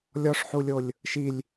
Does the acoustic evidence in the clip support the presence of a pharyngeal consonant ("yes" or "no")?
yes